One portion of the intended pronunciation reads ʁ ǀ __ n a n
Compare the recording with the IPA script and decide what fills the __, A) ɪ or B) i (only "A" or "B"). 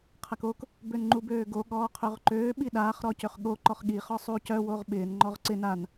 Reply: A